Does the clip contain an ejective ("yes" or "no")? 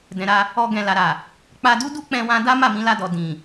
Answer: no